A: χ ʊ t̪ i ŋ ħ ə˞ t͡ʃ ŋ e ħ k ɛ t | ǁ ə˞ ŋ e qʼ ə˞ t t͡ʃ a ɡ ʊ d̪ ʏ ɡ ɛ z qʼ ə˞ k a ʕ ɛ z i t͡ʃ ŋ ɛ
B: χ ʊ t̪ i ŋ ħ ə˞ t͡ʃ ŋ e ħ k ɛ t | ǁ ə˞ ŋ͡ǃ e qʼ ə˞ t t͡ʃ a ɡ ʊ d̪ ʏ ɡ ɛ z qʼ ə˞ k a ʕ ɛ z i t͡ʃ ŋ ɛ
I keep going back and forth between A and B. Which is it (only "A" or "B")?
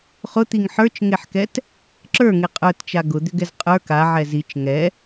A